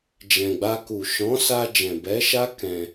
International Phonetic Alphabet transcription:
d͡ʒɛ̃˨ɡ͡ba˧ku˨ ʃɔ̃˨˦sa˧ d͡ʒɛ̃˨ bɛ˨˦ʃa˦ kɛ̃˧

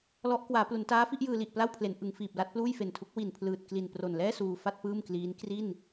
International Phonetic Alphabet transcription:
lɔ˦˥ʔ kwaː˩˦plu˩˦ntaː˦˥fi˥˩ʔ jɯː˧li˨˩ʔpla˥˩wpʰle˩˦n ʔɯ˩˦ŋfiː˨˩p̚la˥˩t̚ pluː˥˩jfe˨˩ntʰu˦˥k̚ wi˨˩npʰlɯː˨˩t̚kli˨˩n pro˨˩nlɛː˥˩ suː˧fa˥˩t̚ pɯː˥˩mkliː˦˥n kri˥˩n

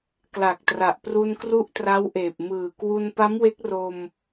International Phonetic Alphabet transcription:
kla˨˩k̚tra˨˩ʔ pru˧nkru˦˥ʔtra˦˥wʔeː˨˩p̚ mɯː˨˩kwu˧n pa˦˥mwe˦˥k̚ro˧m

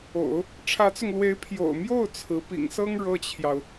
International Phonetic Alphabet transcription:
o̰˨˩˦ʊ̯ | ʈ͡ʂʰä˧˥t͡sʊ˧ŋlwe˧˥ɪ̯ pʰjo̰˨˩ʊ̯mjo˥˩ʊ̯ t͡sʰɹ̩˧˥ pḭ˨˩ŋsɤ˥ŋ ɻɤ˥˩t͡ɕʰjɑ˩ʊ̯

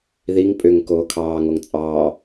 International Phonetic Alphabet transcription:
ðiŋ pʼʏŋ koːkʰɑːŋoŋ t͡sʼɑː

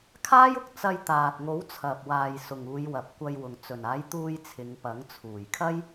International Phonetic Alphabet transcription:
kʰaː˥jʊ˨˥k̚ t͡sɐ˧jt̪aː˨t̚ŋo˨˥w t͡sʰɐ˨p̚waː˨j sʊ˨ŋuː˨˧jwɐ˨p̚ kʷɐ˧jwʊ˨ŋ t͡sɵ˨˩naː˨˥jt̪uː˧j t͡sʰɪ˨˧ŋpɐ˨˥ŋ t͡sʰuː˨˩jkʰɐ˥j

